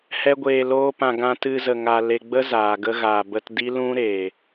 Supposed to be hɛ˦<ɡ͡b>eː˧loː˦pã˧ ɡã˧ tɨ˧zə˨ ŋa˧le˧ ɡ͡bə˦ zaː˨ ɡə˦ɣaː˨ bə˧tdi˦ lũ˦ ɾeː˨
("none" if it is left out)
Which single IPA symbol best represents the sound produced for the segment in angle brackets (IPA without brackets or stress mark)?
ɡʷ